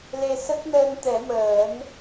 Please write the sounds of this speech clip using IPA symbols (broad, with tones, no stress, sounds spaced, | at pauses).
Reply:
l e˧ s ə˦˥ k̚ n əː˧ n t̪ ɛ˨˩˦ m əː˨˩˦ n